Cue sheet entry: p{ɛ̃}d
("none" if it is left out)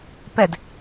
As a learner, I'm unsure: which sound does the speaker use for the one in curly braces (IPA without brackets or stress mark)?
ɛ